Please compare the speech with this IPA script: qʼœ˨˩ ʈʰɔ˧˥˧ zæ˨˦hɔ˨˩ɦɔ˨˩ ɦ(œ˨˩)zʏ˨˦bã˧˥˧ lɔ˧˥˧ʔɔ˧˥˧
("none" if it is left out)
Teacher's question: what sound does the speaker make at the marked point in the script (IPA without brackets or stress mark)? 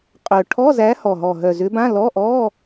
œ˨˩